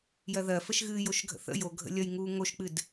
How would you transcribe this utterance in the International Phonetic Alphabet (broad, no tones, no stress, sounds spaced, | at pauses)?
j ɜ ð ɜ f ə ʃ ɣ ɨː j o ʃ ɡʱ ə̰ θ ə̰ j o ɡʱ ə̰ lʲ ʌ j ŋ uː ŋ o ʃ k͡p ɨ d